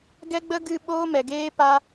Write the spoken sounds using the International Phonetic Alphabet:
ɡɛ˦ɡ͡bə˦ ɡɨ˦ ɓoː˦mɛ˨ɡeː˦ pa˦

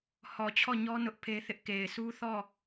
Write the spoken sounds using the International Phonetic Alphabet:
hɔ˨t͡ɕʰɔ˦˨ɲɔ˦ nʊ˦ʔpʰe˦θɪ˦ʔ ke˨ɪ̯su˦θɔ˦˨

